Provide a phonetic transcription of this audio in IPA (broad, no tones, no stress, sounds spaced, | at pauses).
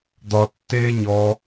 d̪ ɒ tː eː ɲ ɔ